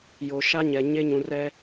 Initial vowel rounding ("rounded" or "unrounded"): rounded